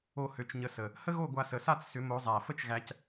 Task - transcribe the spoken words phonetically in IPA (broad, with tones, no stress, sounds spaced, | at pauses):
o˥˨ h ø˧ t͡ʃ ɲ ə˧ s ə˨˩ | h ə˥ ɣ o˥˨ ɡʷ a˧ s ə˨˩ s a˥˨ t͡s s ʏ˨˥ m o˨˥ zˤ æ˨˩ f ə˥ t͡ʃ ɣ æ˧ c